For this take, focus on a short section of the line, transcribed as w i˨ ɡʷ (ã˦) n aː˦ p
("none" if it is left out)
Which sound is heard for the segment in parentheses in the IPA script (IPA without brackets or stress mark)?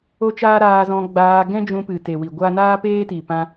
a˦